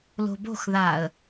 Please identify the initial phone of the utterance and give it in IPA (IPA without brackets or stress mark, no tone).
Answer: l